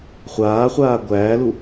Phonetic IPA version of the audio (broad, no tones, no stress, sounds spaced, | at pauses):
χʷ aː χʷ aː ɡʷ æː l u